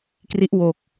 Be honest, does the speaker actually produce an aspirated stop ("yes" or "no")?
no